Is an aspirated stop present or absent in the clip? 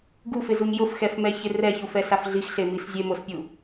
absent